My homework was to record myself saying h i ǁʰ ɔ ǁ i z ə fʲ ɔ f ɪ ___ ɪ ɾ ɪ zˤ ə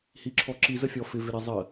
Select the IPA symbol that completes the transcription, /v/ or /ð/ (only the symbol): v